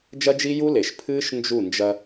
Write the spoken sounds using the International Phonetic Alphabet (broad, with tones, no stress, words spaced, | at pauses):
d͡ʒɐ˦d͡ʒi˦ju˦le˨ʃ pʰɨː˦ʃ nd͡ʒu˦˨nd͡ʒɐ˦